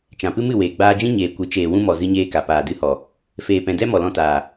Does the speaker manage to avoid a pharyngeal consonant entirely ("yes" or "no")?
yes